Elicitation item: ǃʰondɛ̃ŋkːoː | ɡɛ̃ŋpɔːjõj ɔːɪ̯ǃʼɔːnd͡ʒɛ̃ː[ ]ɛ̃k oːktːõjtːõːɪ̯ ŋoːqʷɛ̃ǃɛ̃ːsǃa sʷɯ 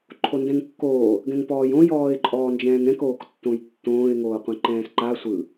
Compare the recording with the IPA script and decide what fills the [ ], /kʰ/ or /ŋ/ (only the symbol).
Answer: ŋ